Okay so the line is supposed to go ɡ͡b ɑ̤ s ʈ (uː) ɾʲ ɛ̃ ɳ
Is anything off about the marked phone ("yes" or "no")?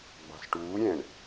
no